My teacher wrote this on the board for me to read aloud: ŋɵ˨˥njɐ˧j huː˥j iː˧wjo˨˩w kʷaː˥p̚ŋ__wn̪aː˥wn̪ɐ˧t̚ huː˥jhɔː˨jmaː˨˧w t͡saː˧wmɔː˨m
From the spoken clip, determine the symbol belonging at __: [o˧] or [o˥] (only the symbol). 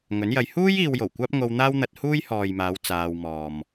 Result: o˧